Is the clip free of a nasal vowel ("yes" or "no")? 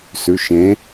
no